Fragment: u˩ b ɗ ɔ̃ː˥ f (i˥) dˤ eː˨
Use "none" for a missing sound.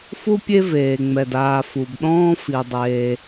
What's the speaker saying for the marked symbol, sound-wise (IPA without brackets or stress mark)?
i˨